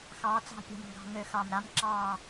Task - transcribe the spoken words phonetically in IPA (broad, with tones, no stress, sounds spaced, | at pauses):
x ɑː˨˥ t͡s ɑ̤˦˨ pʲ ɑ̤˦˨ m ŋ ɡ ɑ̤˦˨ ŋ ø˧˩˧ x ɑ˨˩ m ɾ a˨˥ m ǁ ɑː˦˨